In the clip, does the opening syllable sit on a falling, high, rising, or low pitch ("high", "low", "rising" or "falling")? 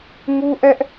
high